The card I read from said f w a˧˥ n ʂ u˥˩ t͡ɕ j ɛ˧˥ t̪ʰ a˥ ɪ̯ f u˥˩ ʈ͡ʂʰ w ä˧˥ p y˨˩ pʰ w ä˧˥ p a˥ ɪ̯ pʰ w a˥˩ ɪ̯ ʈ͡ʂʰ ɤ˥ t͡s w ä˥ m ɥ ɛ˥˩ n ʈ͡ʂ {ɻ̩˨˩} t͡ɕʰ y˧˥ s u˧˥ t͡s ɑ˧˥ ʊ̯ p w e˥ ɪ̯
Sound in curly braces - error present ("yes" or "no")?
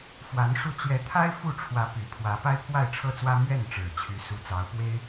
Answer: no